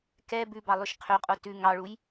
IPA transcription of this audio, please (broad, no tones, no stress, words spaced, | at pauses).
kɛ bʉbɑlˠʉʃ qʰøqʼo tʉ ŋɑɭuj